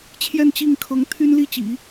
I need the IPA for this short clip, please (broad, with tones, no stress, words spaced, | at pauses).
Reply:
t͡ɕʰjɛ˥˧nt͡ɕi˥˩ŋkʰɤ˧˥ŋ t̪ʰy˥nli˥˩t͡ɕḭ˨˩˦